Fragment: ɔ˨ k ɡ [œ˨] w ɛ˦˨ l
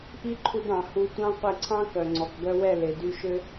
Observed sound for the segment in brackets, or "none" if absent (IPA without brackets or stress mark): œ˧